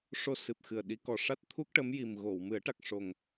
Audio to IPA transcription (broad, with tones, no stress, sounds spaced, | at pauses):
ʂ o˧ s ɨ˨˩ p̚ x ɨ˨˩ ə̯ ɗ i˨˩˦ k ɔ˨˩ ʂ a˦˥ t̚ t̪ʰ u˦˥ k̚ ʈ ə˧˥ m j i˨˩ m ɣ o˨˩˨ w m ɨ˨˩˦ ə̯ ʈ a˨˩ k̚ ʂ o˨˩ ŋ